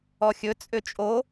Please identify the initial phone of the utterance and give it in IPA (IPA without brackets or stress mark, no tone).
ɔ